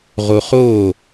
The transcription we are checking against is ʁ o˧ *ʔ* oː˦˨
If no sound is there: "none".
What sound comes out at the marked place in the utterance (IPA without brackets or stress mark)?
χ